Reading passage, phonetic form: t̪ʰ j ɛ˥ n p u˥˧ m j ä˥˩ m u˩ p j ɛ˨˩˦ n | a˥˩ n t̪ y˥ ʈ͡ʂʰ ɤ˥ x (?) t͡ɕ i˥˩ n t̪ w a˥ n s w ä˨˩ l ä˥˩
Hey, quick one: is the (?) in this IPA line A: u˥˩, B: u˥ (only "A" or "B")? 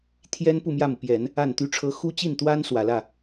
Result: B